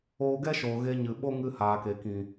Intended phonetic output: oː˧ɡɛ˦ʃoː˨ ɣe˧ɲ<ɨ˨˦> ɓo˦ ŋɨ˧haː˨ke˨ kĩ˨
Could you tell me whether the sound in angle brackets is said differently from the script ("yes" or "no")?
yes